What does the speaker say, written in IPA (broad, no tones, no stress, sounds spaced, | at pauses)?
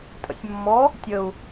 tʼ ə̰ sʲ mː ɔ | tʲ ə u̯